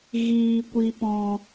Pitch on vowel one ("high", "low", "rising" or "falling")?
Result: low